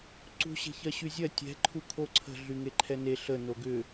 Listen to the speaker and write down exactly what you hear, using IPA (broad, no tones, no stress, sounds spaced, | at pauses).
ǀ ṳ ɕ e̤ ç ɜ ɕ y zʲ ɜ tʲ ɛ̤ ǃʰ u kʰ o ǀʰ ə̤ ɮ y ŋ e ǃʰ ɛ n e ɬ ə n o ɡ ʏ